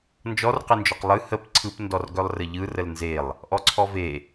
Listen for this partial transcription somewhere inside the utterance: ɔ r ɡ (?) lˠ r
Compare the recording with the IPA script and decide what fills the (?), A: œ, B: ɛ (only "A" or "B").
A